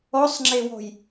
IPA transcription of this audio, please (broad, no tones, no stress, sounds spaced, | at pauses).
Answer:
ɔ sˤ ŋ͡ǁ e w ɔ̤ j